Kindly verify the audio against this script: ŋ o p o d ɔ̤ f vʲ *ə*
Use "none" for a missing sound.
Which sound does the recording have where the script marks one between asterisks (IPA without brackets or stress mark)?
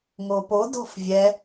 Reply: ɛ